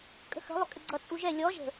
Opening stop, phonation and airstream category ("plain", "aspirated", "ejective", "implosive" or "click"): ejective